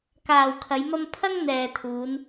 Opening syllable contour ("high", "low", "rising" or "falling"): low